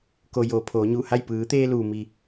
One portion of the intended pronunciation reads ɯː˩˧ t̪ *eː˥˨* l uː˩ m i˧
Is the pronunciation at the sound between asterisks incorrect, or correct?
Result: incorrect